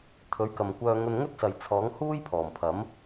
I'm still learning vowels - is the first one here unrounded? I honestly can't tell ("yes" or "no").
no